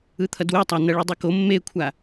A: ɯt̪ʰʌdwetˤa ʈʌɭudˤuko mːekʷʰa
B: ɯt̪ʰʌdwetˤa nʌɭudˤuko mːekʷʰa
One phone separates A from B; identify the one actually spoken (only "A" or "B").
B